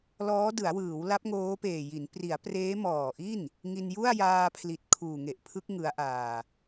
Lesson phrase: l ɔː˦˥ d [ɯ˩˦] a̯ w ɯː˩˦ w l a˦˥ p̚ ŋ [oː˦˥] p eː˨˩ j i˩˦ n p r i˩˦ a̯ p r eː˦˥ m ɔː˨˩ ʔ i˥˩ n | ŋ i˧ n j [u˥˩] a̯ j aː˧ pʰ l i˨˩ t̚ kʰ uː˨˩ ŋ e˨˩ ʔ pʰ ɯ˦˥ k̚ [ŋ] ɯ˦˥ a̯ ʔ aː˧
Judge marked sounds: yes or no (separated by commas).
yes, yes, yes, yes